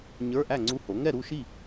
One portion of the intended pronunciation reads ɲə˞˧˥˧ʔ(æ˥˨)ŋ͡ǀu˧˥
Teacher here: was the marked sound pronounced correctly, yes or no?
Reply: yes